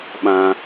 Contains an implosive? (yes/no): yes